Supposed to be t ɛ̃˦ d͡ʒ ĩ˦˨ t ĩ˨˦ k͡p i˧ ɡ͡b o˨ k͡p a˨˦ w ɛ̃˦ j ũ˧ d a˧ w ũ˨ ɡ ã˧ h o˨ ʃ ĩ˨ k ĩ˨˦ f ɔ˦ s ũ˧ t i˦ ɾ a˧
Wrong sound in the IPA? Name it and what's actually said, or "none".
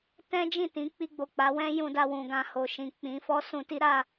k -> k͡p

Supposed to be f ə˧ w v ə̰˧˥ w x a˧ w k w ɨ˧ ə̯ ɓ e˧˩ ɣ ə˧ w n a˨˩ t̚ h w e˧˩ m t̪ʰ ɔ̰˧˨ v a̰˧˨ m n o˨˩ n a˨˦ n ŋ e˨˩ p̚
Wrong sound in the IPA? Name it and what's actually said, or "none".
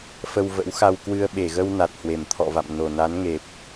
none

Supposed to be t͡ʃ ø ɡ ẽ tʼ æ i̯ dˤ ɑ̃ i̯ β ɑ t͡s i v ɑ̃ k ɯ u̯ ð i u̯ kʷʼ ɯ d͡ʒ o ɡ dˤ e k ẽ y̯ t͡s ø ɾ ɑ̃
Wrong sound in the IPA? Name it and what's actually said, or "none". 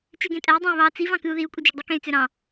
none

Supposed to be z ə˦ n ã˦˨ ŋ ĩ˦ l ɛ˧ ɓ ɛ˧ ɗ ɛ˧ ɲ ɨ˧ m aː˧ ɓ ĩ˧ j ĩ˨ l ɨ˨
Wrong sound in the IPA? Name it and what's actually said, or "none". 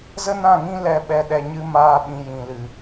none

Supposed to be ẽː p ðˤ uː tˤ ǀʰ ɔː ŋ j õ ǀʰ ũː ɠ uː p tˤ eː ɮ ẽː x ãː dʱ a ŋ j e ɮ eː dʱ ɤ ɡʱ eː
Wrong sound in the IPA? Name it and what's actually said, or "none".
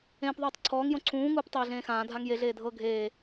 ɠ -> ŋ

